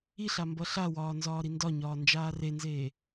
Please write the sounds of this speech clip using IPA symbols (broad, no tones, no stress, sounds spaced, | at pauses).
i ɬ a m b ʌ ɬ a w ɒː n z ɒː ɾ i n d ɒ ɲ ɒː n d͡ʒ aː r e n z eː